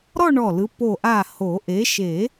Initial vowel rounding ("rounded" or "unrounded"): rounded